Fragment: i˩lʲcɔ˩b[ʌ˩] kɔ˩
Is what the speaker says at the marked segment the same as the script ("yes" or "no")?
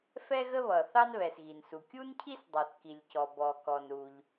no